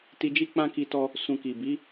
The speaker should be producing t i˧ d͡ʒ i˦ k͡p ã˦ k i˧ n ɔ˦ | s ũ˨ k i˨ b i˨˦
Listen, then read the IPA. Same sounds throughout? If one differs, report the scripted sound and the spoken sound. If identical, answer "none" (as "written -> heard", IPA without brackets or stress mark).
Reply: n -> t